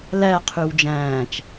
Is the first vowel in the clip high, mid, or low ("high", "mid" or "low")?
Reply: low